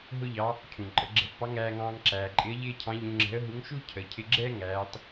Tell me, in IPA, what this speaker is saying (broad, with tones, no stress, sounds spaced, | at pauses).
ɦ ʊ˥ ʎ ɑ˧˥ | cʰ ũ˩ ǃʼ ə˩˧ ɡ͡ǁ ɛ̤˧˥ f p ɑ˧˥ ŋ æː˧ ŋ ɑ̃ː˧ ŋ ǁ æː˩ ǃʼ ɪ˧˥ ə̯ ʎ ɪː˥ cʰ ɑ̃˧˥ ʎ ũ˧ ŋ͡ǁ ɛ̤˧˥ ə̯ ɦ u˧˥ ŋ ʃ u˥ cʰ ə˩˧ cʰ ɪ˧ ɡ͡ǁ ɛ˥ ŋ æː˧˥ tˤ